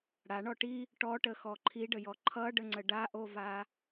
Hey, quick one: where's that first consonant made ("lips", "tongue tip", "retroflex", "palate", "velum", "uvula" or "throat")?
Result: retroflex